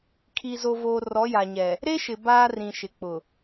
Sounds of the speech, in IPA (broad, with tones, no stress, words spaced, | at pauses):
kʰi˨zo˨voː˨ rɔ˨˦ja˨ɲɛ˨ | ɾe˦ʃɪ˨ baː˦rĩ˨ ʃɪ˨k͡pʊ˨